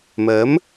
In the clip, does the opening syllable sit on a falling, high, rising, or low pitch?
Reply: rising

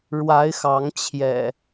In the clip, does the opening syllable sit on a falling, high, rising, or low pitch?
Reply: rising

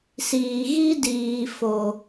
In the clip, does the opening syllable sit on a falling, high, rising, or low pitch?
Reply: low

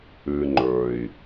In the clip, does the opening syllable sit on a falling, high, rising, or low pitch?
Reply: low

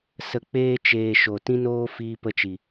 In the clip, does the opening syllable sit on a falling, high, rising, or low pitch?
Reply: low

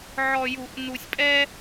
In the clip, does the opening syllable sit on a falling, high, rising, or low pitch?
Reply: low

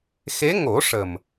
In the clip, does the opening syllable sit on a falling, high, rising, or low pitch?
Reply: rising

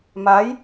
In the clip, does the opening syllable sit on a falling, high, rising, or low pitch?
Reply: rising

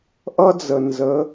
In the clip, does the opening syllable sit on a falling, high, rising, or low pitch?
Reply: high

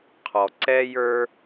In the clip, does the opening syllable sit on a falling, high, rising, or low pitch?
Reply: low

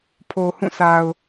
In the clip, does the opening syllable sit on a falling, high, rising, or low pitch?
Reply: low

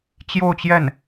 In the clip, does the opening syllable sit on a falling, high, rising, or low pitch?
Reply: falling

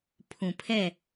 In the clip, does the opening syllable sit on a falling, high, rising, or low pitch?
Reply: low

